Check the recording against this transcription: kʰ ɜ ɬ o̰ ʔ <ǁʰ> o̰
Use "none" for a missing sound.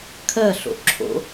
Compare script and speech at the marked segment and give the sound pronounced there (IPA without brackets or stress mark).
ǁʰ